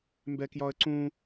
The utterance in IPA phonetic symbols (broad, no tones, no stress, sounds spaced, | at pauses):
m b ɛ k j ɒ ə̯ ǀ ũ